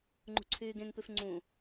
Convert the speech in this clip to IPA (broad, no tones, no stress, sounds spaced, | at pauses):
ŋ͡ǃ ṳ ǀʰ yː ɡ ẽ ŋ p ʉ f ŋ͡ǀ ũ